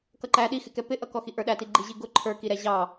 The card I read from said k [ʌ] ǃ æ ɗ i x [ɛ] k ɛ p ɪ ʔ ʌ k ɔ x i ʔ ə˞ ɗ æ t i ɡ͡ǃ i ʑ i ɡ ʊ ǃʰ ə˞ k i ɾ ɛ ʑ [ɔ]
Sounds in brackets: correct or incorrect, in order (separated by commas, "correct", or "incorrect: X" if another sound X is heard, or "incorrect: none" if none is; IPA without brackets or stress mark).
correct, incorrect: ɪ, incorrect: ɑ